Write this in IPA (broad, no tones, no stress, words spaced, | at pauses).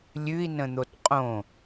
lʲʉi̯nə̃n̪ot qʼõ